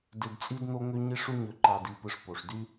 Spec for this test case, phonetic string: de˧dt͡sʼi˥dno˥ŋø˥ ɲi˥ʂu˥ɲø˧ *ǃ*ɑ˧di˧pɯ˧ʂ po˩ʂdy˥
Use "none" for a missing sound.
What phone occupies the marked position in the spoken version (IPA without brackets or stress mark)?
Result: ǃ